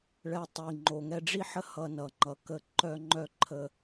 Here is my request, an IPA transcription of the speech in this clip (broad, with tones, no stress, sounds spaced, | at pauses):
ɭ ɛ˧ tˤ i˨ ŋ͡ǃ o˨ ŋ ɛ˧ ɖ͡ʐ i˦ ħ ə˦ h ʌ˧ n ʌ˨ ŋ͡ǃ ʌ˨ k ə˧ ǃ œ˧ ŋ͡ǃ œ˦˨ ǃʰ ə˧